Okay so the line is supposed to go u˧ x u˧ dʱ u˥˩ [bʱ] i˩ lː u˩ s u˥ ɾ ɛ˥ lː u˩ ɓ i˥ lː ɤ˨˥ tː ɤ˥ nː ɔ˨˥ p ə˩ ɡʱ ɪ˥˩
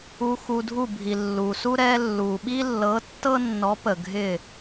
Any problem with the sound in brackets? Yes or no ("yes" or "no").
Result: no